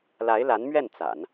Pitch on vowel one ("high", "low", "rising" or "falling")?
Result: rising